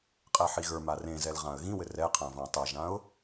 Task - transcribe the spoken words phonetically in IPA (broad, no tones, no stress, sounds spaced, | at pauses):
qʼ ɛ ħ i ɣ ə˞ m a r ẽ z ɛ l ʁ ã ə̯ ɣ ĩ w ɘ r ɛ qʰ ã v ã tˤ ɛ ʒ ã ʊ̯